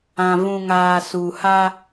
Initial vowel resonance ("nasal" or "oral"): nasal